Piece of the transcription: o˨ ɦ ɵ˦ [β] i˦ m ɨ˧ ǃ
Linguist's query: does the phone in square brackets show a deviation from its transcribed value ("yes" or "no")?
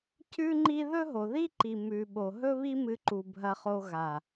no